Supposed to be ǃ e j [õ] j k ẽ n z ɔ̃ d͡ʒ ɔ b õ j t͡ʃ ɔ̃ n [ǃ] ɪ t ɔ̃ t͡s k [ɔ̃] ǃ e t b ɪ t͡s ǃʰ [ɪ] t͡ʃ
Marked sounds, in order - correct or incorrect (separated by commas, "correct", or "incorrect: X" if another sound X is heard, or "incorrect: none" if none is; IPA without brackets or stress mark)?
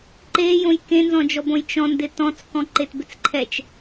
correct, incorrect: d, correct, incorrect: ɛ